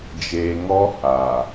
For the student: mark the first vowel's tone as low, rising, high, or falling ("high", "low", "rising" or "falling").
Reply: low